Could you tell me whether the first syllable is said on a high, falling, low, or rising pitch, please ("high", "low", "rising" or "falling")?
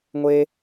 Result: high